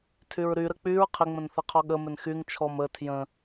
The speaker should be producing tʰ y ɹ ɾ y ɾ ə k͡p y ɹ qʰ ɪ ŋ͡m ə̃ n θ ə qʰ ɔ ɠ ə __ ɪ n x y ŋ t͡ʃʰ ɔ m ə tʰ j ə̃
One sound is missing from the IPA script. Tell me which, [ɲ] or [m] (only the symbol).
m